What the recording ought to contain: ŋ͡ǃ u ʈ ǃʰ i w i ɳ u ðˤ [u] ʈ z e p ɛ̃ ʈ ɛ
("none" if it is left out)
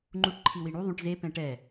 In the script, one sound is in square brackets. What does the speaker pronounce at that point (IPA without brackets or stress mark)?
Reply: ũ